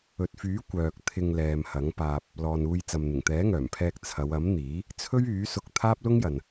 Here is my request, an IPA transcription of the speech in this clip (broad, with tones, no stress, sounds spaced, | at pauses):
ɵ˨ t̚ f yː˨˥ kʷ œː˨ k̚ t̪ʰ ɪ˧ ŋ l ɛː˨ m h ɐ˨˥ ŋ p aː˧ p̚ | l ɔː˨ n uː˧ j t͡s ɐ˨ m n̪ ɪ˨˩ ŋ t̪ ɛː˨˥ ŋ œː˨˩ m pʰ ɛː˧ k̚ t͡sʰ ɐ˨˧ w ɐ˨˥ m n̪ iː˨˥ | t͡sʰ ɵ˥ ɥ yː˨˥ s ʊ˧ k̚ t̪ʰ aː˥ p̚ l ʊ˥ ŋ j ɐ˨ n